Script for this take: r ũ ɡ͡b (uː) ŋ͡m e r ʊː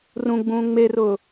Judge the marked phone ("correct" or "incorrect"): incorrect